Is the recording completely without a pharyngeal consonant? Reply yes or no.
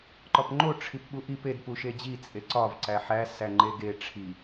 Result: no